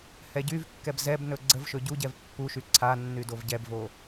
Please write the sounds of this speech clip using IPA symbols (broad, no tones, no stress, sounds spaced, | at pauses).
h ɛ ɟ y v kː ɛ b z ɛ b n ɵ ɡ͡ǀ ə v ʃ ɵ ɟ u ɟ ɛ v pː u ʃ y ǀʰ a nː y d o v ɟ ɛ b v o